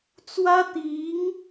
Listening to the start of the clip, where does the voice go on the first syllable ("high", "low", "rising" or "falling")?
high